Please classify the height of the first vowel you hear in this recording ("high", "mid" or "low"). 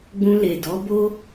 high